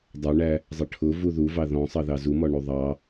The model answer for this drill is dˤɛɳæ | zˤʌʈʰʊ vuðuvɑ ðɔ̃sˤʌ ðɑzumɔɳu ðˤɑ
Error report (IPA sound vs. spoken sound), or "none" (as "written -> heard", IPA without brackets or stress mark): none